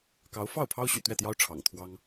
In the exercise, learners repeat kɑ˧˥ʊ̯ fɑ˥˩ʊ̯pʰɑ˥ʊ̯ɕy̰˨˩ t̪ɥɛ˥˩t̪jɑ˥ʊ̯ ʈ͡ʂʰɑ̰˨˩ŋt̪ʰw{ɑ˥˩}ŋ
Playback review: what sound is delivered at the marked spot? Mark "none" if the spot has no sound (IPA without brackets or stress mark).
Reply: ɑ˥